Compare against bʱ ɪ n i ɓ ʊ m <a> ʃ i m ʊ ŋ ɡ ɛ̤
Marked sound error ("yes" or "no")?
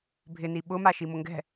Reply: no